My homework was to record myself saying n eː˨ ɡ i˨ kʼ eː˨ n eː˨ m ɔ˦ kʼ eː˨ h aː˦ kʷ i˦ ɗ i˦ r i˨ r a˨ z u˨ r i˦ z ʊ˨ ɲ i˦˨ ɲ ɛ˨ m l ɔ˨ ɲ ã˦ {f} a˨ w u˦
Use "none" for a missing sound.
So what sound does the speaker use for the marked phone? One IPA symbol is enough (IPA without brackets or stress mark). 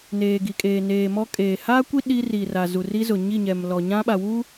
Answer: ɓ